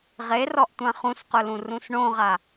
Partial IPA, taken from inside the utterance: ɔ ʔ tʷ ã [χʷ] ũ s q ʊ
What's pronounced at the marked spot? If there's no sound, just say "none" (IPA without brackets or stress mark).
χ